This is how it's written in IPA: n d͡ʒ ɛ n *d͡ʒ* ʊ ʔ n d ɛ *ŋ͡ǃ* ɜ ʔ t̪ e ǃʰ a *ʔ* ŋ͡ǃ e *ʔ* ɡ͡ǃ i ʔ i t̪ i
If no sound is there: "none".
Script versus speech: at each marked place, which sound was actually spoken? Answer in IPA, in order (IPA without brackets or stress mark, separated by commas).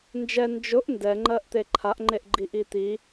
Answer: d͡ʒ, ŋ͡ǃ, ʔ, ʔ